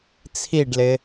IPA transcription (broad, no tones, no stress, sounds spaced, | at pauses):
t͡sʰ i ɖ l ɪ